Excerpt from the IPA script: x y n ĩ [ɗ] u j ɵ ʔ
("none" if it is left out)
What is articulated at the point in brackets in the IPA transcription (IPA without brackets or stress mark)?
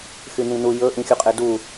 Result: n